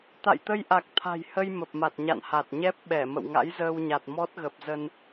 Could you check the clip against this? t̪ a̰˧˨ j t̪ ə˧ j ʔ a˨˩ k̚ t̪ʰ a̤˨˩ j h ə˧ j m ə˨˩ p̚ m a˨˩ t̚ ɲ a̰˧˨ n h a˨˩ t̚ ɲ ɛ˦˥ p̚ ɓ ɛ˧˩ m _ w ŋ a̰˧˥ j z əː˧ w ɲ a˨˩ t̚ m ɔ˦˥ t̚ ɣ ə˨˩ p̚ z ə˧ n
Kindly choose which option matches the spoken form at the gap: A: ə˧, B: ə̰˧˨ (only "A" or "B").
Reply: B